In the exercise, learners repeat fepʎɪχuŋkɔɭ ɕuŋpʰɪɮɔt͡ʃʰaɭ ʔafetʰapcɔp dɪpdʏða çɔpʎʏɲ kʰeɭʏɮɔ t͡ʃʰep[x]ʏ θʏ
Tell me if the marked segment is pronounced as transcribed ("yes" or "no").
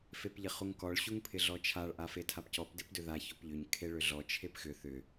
yes